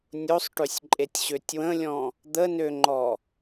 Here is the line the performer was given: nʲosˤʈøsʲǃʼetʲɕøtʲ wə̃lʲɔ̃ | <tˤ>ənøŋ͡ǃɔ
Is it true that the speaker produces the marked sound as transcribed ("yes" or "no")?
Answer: no